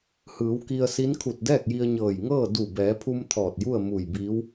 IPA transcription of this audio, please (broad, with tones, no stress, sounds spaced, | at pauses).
h ɯː˩˧ w k i˧ ə̯ s i˧˥ n kʰ u˧˩ t̚ d ɛː˥˨ k̚ j i˧ ə̯ ɲ ɤː˧˩ j ŋ ɤː˥˨ d u˧˩ b ɛː˩˧ pʰ u˧ m t̪ʰ ɔː˧˩ t̚ j u˥˨ ə̯ m u˧˩ j b iː˧˥ w